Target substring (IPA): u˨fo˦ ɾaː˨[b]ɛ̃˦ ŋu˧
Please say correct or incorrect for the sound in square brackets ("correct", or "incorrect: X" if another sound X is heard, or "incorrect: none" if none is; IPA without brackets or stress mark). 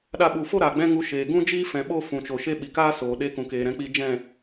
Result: incorrect: ɡ͡b